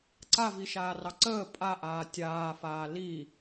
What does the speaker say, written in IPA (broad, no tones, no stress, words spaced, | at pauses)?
ǀaviʃaːrɑ ǀəː pʼaʔaː tʲaːfaː li